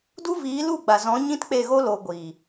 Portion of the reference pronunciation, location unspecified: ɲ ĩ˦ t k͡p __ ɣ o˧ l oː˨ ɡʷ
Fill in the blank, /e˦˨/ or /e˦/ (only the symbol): e˦˨